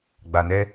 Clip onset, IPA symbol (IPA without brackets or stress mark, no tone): ɡ͡b